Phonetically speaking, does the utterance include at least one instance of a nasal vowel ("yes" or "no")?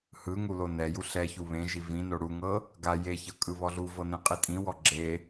yes